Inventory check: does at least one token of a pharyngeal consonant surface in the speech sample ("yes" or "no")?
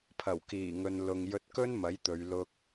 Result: no